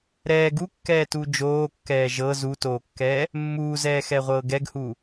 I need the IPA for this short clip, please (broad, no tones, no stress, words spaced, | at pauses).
ɾɛː ɡukːɛːtuː d͡ʒoːkːɛː ʒɤ zutoːkːɛː | mːuːzɛːxɛʁʷɤː ɡɛɡhuː